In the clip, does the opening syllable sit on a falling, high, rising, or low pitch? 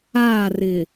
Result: falling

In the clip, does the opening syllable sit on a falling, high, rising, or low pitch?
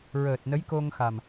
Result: low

